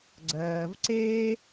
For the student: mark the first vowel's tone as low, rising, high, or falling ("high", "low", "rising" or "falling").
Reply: low